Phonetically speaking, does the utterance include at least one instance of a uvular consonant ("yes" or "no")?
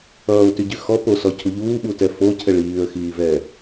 no